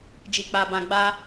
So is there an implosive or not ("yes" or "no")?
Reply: no